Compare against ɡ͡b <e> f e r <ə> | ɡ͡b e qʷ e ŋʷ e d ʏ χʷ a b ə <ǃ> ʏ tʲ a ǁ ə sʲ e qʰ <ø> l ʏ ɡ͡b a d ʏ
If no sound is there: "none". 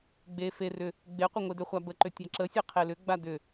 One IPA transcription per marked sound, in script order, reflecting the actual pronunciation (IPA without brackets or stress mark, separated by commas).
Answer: e, ʏ, ǃ, e